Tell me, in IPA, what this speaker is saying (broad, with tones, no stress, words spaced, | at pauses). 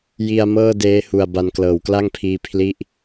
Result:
ji˧a̯ mɤː˥˩ deː˦˥hu˨˩a̯ ba˧nklɤː˩˦wkla˥˩ŋpʰiː˧ pʰli˦˥ʔ